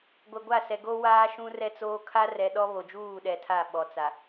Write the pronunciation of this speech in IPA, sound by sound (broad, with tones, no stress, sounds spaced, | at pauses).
ɡʷ ɛ˨ ɡʷ a˦˨ s ɛ˨ ɡ o˦ w aː˦ ʃ ũ˦ r ɛ˦ t͡s oː˦ kʰ a˦ r ɛ˨ ɗ ɔ˦ β o˨ d͡ʒ uː˦˨ ɗ ɛ˨ tʰ a˦˨ ɓ ɔ˨ t͡s a˨